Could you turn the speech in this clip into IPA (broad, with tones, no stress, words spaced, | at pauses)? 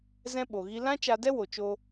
zɛ̃˦ɓo˨ ɣi˧lã˦ t͡ʃa˧dɛ˦wo˨ t͡ʃo˧